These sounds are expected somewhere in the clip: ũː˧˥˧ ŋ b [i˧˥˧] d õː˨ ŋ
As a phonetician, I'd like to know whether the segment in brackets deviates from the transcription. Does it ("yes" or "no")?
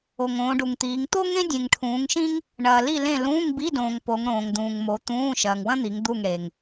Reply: no